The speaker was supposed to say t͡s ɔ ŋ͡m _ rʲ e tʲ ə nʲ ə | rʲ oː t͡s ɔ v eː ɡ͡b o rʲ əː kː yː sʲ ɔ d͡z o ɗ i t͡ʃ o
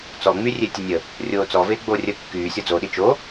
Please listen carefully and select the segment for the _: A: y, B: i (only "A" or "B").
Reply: A